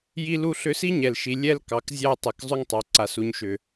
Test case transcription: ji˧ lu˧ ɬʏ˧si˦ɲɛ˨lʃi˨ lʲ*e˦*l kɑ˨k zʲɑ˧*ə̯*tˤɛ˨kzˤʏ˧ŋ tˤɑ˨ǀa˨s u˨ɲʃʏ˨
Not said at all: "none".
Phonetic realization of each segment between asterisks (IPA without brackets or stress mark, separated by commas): ɛ˦, ə̯